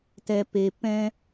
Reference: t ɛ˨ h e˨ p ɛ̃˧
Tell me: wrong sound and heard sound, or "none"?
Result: h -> p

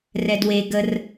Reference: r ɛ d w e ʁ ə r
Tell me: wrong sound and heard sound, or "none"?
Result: ʁ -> ɡ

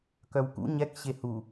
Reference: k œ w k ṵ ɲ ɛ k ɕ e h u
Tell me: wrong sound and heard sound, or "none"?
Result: none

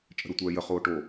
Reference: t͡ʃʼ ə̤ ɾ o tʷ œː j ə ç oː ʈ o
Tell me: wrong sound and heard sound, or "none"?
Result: ç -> χ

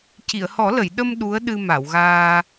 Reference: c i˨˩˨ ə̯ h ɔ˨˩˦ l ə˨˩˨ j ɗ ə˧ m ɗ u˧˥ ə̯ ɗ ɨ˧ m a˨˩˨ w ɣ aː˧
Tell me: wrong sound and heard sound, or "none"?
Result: none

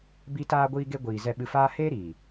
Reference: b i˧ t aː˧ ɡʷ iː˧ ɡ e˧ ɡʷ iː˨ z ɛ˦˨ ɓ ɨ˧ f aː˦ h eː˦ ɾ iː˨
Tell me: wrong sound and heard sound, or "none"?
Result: none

